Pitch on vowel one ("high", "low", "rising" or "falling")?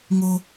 high